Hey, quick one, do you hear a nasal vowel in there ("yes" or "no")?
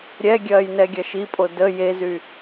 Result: no